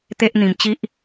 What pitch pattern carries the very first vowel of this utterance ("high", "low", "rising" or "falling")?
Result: high